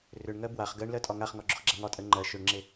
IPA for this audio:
rʏɳŋɜ bwaχ ɡɜɳlɜ tʼɒŋaχŋɒ ɡ͡ǁʏχɡ͡ǁaŋɒtʼɜ ŋ͡ǃɜ ʃʏɳŋ͡ǁe

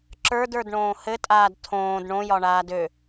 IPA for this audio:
ǁə˞də˞dɳõː hɘtʼaːd tʰõːd ɳõjɒɳaːd ø

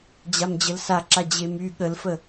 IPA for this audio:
d͡ʑamd͡ʑəlsaǁa d͡ʑemy ɠəlfə

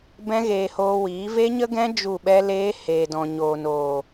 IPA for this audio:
bɛ̃˦ɣeː˧hoː˧wiː˨˦ ve˦ɲə˦ɡɛ̃˦ d͡ʒu˦˨ɓɛ˦leː˦ heː˨dɔ̃˨ɲoː˨noː˨

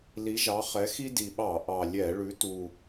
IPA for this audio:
li˨˦ʒɑ˨˦χɛ˨˦ xi˦di˨˩ɓɑ˧˩˧ ʔɑ˨˩lʲɛ˧˩˧ ɭʉ˨˦tu˨˩

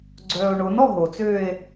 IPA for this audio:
ɡ͡ǀœːo̯ɳonɔ ɦot͡søːe̯

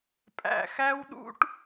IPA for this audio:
pʼæ̰˨xæ˦wɗṵ˦ʈ

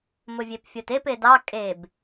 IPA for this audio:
mʊvʲepfʲotep edɑ kʼeb

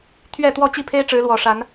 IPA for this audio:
t̪ʰɥɛ˥˨ t̪wɔ˥˨t͡ɕi˥˨pʰe˦ɪ̯ ʈ͡ʂɻ̩˨˦lwɔ˨˩ʂa˨˦n

